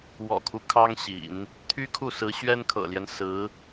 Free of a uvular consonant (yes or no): yes